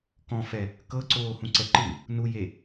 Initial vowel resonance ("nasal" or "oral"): nasal